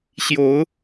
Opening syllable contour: rising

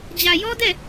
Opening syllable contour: low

